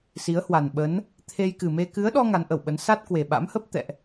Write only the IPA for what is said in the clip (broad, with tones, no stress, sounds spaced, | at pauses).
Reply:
s i˨˦ ə̯ h w a˨˩ n ɓ ə˨˦ n | t̪ʰ e˧ j k ɨ˨˩ m e˧ k ɨ˨˦ ə̯ ɗ ɔ˧ ŋ a˨˦ n ʔ ə˧˩ w ɓ ə˨˦ n s a˦˥ t̚ k w e˨˩ ɓ a̰˧˥ m h ə˦˥ p̚ t̪ ɛ̰˧˨ ʔ